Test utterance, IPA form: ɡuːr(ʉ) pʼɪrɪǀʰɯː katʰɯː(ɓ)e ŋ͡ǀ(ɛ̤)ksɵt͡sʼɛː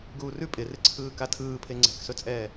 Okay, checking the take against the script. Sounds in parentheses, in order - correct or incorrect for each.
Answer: correct, incorrect: pʰ, correct

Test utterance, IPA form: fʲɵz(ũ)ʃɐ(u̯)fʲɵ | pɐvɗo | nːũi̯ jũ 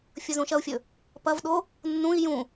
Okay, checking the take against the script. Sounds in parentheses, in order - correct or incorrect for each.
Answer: correct, correct

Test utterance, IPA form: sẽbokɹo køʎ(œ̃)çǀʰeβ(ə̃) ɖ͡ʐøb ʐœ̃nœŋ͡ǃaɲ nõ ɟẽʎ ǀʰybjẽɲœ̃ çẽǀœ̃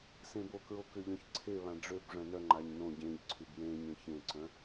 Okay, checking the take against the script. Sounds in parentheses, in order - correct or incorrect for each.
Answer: correct, incorrect: ã

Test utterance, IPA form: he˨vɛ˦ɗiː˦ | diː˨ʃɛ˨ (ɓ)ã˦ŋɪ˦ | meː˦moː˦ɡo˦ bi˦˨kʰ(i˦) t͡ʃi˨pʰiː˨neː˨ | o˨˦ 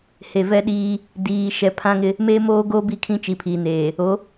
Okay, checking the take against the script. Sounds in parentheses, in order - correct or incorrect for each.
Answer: incorrect: pʰ, incorrect: ĩ˦

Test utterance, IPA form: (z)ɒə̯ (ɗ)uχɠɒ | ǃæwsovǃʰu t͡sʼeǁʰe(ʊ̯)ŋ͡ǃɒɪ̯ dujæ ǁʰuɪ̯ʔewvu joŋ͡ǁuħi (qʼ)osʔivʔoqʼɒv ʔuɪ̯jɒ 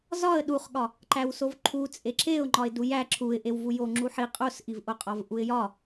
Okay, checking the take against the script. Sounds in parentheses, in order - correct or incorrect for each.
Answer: correct, correct, correct, correct

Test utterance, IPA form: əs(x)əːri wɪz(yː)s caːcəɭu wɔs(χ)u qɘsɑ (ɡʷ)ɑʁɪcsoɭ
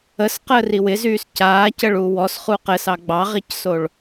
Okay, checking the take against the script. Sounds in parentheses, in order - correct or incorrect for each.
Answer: incorrect: q, correct, correct, incorrect: ɡ͡b

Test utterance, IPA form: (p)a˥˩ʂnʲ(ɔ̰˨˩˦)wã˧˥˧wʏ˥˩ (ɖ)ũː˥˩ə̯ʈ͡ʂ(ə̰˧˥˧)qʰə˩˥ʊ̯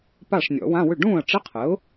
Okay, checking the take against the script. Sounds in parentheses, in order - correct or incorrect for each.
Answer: correct, correct, correct, incorrect: ə˧˥˧

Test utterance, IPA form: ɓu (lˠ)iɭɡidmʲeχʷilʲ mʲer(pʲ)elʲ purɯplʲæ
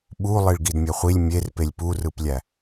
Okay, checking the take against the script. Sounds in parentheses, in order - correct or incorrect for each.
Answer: correct, incorrect: p

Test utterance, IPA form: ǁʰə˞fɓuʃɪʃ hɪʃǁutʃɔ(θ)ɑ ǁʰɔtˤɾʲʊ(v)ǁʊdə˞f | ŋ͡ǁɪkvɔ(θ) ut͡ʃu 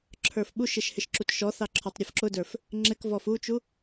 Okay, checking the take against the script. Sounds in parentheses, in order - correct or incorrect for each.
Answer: correct, incorrect: f, incorrect: f

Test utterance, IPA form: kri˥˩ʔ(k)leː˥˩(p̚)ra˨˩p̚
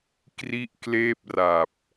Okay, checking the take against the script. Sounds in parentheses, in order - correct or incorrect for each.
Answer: correct, correct

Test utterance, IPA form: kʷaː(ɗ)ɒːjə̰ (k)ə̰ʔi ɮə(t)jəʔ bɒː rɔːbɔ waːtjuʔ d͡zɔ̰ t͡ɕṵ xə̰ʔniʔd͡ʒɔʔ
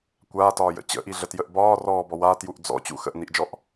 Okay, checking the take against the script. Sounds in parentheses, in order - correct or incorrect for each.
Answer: incorrect: t, incorrect: t͡ɕ, correct

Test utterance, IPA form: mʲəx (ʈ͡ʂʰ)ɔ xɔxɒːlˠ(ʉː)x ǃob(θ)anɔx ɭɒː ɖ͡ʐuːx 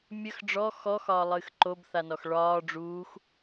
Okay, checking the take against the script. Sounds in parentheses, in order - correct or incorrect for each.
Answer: incorrect: ɖ͡ʐ, incorrect: ɨː, correct

